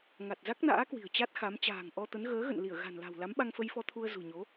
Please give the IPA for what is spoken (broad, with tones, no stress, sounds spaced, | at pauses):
ŋ a˨˩ t̚ z a˦˥ k̚ n a̰ː˧˥ k w i̤˨˩ ə̯ t͡ɕ a˦˥ t̚ x a˨˦ m t͡ɕ a̤ː˨˩ ŋ ʔ ɔ˧ t̪ ə˨˦ n ɣ əː˨˦ ɣ ə̰˧˨ n l i˧˩ ə̯ ɣ a̤˨˩ n l a̤˨˩ w l a˨˦ m ɓ a˧ ŋ f ə˧ j f ɔ˧ t̪ʰ u˧ ə̯ z ṳ˨˩ ɲ o˨˦